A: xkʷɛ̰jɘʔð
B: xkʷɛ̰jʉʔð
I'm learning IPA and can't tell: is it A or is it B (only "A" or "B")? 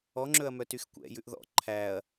B